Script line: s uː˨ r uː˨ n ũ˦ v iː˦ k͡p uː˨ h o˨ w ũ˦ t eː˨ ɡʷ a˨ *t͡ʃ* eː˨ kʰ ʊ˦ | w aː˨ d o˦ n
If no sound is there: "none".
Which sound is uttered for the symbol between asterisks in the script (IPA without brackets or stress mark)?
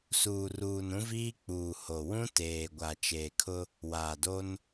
t͡ʃ